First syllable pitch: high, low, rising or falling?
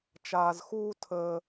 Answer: low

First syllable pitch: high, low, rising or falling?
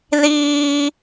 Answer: high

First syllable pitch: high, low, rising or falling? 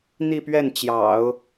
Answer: falling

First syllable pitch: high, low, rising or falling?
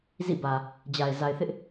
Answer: falling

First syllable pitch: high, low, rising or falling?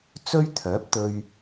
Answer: high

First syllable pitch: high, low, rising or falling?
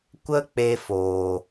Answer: high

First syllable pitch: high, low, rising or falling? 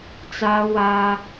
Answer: high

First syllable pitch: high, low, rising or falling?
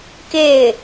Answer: falling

